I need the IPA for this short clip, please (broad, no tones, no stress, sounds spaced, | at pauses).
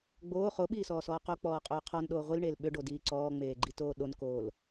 ɡ͡b oː χ o ɓ iː s ɔː s ɔː q o k͡p ɔː qʼ oː qʰ ɔ n ɗ oː ʁʷ i l ɳ eː l ɓ ʏ ɖ o d iː ǀ ɔː ŋ͡m eː ɡ͡ǃ i t oː ɗ o n k oː l